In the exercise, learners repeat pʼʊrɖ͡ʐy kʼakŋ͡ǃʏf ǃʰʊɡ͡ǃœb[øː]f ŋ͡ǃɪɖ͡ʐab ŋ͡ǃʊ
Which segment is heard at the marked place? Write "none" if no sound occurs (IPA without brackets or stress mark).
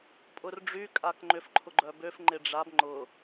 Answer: ø